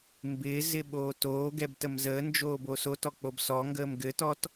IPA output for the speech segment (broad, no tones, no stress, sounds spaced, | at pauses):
m b ɪː z ɪ ɓ oː t oː ɡ ɛ b t ə m z əː n d͡ʒ oː b o s o t ɔ k͡p o b s ɔ ŋ ɡ əː m ɡ ɘ t ɔ t